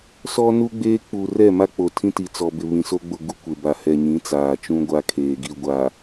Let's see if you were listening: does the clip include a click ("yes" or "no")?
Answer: no